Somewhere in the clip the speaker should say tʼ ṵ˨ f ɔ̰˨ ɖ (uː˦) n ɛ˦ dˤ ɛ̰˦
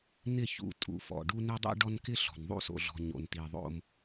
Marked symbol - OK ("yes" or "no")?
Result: no